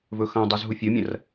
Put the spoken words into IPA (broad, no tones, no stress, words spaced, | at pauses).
vɵxɐ̃dˤʉz ɦufʲomʲɐ̃r